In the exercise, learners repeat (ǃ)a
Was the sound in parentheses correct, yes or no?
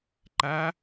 yes